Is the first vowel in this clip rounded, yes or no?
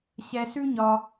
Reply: no